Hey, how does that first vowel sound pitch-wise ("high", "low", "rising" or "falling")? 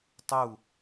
falling